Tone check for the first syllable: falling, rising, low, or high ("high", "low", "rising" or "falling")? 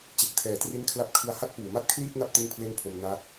low